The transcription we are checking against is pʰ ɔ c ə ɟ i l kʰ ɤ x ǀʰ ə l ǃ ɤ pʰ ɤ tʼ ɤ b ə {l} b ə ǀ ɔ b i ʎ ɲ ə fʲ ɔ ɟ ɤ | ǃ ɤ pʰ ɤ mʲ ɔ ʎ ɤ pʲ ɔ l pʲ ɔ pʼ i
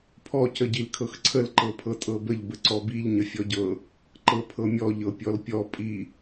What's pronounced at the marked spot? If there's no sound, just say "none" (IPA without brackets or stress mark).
ʎ